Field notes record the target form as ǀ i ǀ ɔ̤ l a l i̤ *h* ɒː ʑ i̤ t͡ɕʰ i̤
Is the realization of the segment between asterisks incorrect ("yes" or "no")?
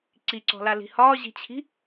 no